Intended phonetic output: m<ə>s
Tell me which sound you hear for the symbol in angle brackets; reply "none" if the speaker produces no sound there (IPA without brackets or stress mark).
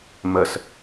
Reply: ə